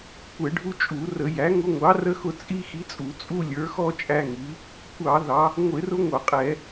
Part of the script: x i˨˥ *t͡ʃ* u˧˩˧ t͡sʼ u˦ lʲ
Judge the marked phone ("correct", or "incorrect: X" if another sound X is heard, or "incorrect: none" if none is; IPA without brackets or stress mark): incorrect: t͡sʼ